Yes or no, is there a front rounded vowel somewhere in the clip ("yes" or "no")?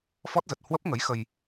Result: no